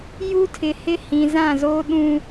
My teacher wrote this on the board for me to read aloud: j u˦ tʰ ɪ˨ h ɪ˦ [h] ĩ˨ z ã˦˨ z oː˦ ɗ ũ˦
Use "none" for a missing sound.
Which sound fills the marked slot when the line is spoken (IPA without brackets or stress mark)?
h